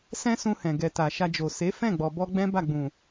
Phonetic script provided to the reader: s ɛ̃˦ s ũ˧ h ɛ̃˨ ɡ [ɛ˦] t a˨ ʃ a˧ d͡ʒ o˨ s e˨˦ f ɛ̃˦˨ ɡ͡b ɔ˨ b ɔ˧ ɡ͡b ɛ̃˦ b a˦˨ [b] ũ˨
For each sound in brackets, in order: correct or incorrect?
incorrect: ɛ˨, incorrect: ɡ͡b

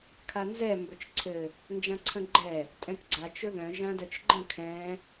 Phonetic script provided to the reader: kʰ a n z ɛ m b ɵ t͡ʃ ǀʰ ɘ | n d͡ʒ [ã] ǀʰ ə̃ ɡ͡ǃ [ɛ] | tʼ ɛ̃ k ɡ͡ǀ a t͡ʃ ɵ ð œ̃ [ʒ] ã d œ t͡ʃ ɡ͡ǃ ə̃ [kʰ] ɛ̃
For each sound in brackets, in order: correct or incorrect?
correct, correct, correct, correct

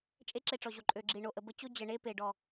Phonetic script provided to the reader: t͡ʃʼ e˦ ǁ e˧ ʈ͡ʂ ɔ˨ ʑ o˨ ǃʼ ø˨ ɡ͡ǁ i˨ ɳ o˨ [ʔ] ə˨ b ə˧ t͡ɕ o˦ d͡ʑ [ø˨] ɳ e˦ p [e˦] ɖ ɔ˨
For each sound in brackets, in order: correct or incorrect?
correct, incorrect: ə˨, incorrect: e˨

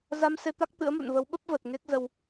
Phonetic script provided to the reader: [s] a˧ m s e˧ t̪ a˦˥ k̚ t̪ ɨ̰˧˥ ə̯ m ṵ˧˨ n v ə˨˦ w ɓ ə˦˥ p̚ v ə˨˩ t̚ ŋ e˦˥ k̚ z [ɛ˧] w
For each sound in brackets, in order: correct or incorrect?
incorrect: z, incorrect: ə˧

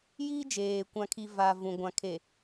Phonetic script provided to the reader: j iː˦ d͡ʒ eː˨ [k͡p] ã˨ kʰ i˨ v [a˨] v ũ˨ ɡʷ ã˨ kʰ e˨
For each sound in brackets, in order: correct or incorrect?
incorrect: kʷ, correct

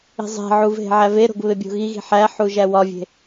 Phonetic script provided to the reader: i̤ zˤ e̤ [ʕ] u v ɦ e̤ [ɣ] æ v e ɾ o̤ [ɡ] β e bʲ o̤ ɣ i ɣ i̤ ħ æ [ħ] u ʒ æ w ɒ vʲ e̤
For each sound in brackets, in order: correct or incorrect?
correct, incorrect: ʕ, correct, correct

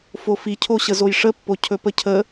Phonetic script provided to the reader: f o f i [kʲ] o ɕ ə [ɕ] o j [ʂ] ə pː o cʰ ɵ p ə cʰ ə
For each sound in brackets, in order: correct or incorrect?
incorrect: cʰ, incorrect: z, correct

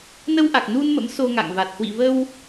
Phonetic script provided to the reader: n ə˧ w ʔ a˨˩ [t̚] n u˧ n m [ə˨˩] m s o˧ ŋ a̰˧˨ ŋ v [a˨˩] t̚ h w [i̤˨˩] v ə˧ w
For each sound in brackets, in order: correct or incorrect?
incorrect: k̚, incorrect: ə̰˧˥, correct, incorrect: ḭ˧˨

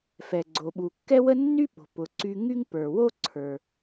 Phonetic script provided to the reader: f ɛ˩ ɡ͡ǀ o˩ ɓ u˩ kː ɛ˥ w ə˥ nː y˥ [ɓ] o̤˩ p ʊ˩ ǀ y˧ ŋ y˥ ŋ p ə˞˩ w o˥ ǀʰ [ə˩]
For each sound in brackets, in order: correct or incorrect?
correct, incorrect: ə˞˩

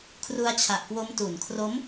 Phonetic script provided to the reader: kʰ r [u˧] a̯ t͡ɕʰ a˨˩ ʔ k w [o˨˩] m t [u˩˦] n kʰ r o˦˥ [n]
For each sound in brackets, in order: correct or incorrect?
correct, incorrect: o˦˥, correct, incorrect: m

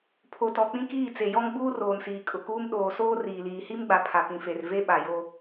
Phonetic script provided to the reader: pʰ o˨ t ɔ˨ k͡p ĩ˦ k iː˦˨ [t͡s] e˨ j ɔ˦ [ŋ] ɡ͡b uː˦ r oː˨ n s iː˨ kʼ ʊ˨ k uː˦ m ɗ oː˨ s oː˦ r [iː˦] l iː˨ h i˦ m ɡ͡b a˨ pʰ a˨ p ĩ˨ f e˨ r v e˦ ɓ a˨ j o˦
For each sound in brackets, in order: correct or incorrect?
correct, correct, incorrect: iː˨

